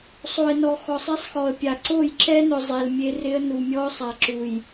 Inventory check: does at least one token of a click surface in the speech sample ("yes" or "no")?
yes